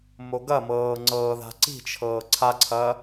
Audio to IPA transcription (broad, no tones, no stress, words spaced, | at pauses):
moɡɐmɤː ŋ͡ǀɤːða̤ǀi̤t͡ʃʰɤː ǀʰaǀʰɐ